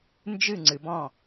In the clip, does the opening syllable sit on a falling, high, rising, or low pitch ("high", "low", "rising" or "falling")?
falling